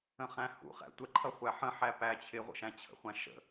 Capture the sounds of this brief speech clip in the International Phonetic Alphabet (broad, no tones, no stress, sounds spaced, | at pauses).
ə̃ χ æ̃ h ṵ χ æ̰ tʷ ə ǃʰ ʌ χʷ æ ħ ə̃ ħ æ p æ t͡ɕʰ ɪ ʁʷ ə̰ ʃ æ̃ t͡ɕʰ ə̰ χʷ æ̃ ʃ ə̰